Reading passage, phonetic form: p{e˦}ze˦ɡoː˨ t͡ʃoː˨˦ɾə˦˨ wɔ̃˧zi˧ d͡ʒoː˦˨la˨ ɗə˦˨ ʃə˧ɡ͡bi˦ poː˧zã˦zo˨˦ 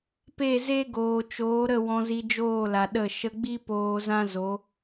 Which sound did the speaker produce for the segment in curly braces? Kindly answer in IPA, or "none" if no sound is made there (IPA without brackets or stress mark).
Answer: e˦˨